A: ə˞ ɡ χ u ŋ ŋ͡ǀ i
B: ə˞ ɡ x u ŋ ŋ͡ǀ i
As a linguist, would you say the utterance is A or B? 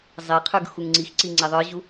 B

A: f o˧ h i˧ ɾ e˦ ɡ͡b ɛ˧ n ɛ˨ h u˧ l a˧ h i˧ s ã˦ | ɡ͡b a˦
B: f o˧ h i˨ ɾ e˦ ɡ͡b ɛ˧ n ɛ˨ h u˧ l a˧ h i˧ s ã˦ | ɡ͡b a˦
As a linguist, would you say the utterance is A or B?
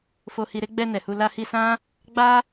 A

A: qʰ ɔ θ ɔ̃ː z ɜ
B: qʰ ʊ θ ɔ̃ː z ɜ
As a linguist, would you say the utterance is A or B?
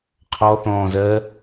A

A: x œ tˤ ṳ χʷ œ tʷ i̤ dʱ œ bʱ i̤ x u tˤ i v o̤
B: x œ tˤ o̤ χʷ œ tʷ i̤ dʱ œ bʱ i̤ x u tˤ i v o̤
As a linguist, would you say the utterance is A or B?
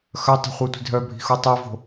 A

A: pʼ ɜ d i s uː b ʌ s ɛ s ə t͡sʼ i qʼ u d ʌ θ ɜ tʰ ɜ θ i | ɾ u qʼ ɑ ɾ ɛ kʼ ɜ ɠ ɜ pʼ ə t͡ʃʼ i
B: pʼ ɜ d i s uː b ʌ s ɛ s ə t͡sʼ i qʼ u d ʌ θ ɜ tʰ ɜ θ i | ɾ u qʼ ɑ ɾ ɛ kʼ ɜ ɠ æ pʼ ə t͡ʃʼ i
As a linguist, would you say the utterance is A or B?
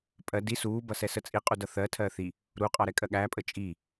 B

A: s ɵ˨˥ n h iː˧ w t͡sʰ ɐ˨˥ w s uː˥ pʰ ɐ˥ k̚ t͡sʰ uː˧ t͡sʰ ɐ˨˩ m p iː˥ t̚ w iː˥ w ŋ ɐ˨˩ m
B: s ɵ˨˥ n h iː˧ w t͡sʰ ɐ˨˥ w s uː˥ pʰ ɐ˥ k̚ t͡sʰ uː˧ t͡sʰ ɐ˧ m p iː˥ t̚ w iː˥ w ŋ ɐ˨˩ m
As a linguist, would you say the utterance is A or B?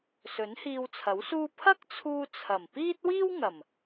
A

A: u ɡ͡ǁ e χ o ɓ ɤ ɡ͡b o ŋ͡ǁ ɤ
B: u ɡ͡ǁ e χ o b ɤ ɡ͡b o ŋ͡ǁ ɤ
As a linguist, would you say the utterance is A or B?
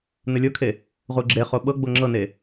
A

